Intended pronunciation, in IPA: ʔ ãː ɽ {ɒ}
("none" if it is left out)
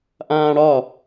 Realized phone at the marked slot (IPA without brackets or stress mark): ɒ